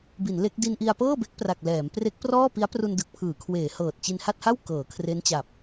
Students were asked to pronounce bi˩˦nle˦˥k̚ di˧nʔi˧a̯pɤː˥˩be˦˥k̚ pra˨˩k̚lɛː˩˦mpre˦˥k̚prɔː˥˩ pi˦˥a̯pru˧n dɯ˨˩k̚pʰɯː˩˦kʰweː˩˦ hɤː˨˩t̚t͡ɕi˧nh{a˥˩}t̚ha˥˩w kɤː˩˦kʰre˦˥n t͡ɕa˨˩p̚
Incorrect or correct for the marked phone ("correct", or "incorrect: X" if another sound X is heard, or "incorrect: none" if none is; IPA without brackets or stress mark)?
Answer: correct